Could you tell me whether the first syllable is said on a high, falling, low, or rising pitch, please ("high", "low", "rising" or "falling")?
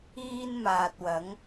high